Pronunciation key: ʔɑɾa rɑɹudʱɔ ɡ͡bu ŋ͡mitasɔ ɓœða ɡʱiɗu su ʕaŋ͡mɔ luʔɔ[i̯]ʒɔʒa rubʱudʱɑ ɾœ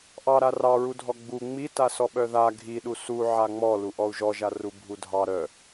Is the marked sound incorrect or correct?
incorrect